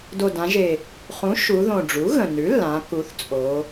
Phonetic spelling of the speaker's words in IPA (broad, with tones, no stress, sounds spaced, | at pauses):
d o˨˩ d ã˩˧ ʒ e˨˩ | χ ũ˩˥ ʃ u˩˧ ð õ˨˩ ɖ͡ʐ u˩˥ ɣ ə̃˨˩ n ʉ˩˥ lː ã˩˧ k u˩˧ θ t͡sʼ o˩˧